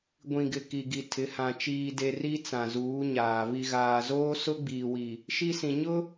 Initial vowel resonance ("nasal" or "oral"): nasal